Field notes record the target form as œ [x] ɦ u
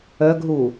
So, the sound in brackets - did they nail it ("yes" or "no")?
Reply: no